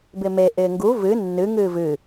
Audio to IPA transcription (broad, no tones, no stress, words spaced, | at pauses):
bɪme ʔɪːŋɡu vɨ nːɨ ŋɨːvɨ